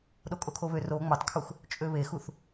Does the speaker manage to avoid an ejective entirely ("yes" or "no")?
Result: no